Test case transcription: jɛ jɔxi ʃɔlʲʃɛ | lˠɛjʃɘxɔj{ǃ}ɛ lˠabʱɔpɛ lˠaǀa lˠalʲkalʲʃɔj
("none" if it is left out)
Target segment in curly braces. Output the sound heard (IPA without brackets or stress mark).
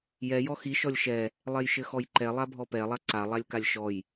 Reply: ǃ